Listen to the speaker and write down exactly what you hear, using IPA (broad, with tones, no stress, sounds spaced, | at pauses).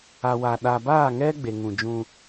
a˨ w a˨ ɗ a˨ b aː˦˨ ŋ ɛ˦ ɡ͡b e˨ ŋ ũ˨ d͡ʒ ũ˦